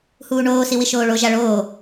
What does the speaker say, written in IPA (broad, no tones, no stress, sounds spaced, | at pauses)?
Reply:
h uː ɳ oː s i w i ʃ oː ɭ o ʒ a ɭ oː